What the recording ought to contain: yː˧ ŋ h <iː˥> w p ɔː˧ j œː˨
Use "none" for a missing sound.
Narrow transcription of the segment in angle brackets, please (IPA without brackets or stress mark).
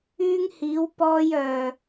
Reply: iː˨˧